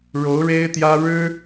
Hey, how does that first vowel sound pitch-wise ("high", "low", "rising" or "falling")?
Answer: rising